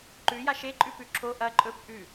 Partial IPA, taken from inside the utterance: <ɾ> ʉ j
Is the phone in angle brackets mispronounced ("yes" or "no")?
yes